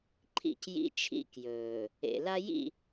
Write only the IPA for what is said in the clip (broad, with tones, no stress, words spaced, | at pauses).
ǃʰḭ˦˨c jḭ˦t͡ʃʰḭ˦ kjɵː˨ | ḛ˨la˦jḭ˦˨